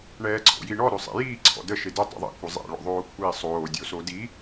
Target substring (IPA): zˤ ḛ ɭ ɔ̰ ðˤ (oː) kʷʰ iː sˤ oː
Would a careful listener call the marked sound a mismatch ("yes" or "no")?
no